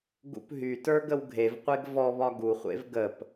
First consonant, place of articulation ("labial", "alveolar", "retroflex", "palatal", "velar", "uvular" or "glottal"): velar